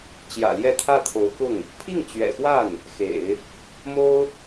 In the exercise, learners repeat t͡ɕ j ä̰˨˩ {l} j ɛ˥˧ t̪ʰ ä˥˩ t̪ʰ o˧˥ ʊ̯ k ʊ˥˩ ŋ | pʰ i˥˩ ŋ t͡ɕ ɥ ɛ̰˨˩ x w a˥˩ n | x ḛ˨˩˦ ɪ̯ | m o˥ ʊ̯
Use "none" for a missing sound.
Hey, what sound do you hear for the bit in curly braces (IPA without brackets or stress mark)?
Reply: l